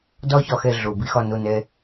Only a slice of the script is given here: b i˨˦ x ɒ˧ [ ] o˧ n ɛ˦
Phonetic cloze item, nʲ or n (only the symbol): n